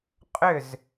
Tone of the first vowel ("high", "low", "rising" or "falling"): falling